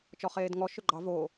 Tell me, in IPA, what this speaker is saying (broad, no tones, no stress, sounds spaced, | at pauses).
t͡ʃ ɔ χ eː d ŋ ɔ ʃ ø ɡ͡ǃ ɑ v o